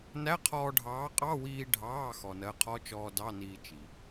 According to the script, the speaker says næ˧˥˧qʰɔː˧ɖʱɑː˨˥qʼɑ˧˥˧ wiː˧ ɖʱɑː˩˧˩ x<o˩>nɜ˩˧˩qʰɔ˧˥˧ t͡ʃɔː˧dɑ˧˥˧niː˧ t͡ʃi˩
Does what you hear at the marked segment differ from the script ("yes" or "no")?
yes